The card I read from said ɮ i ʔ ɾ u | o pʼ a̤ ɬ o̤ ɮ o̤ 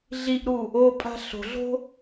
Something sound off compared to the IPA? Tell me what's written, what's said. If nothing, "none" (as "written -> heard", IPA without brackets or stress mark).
none